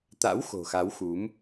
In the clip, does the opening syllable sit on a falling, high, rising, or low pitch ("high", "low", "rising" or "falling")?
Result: rising